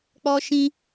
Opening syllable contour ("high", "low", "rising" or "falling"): high